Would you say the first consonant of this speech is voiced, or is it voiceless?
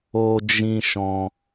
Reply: voiced